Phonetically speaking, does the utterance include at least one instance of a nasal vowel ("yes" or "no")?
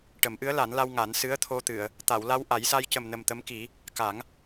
no